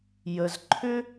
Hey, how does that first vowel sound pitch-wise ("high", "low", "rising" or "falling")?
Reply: low